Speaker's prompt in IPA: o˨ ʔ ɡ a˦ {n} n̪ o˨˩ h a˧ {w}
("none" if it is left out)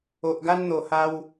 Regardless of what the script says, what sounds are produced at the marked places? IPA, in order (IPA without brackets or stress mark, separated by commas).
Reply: n, w